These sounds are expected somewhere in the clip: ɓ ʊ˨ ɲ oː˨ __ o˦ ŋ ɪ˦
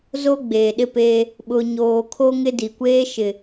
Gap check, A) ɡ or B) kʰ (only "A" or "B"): B